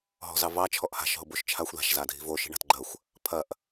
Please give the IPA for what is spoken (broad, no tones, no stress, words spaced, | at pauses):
ɦɔ̤zɑvɑ t͡ʃʰɔʔha̤ʃ ɦoboʃt͡ʃʰaxʷ ða̤ʃ zadʱi̤vo ʃi̤ɳa̤tɡ͡ǃɐxʷ | pʰɐʔ